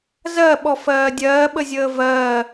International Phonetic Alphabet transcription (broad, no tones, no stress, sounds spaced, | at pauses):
z ɜ ɓ ɔ f ɜː dʲ ɜː ɓ ə zʲ əː v ɜː